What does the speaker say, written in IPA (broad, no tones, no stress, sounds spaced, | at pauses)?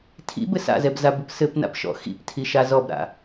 tʰ ḭ b ɘ s a̰ z ɛ b z a b ʊ p s ɘ p n a̰ p ʃ ɔ̰ x ḭ p tʰ i ʃ a z ɔ b ɾ a̰